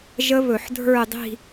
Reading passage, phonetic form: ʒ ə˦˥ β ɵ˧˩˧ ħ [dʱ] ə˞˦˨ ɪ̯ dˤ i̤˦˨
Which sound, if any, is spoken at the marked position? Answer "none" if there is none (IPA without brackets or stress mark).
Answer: dʱ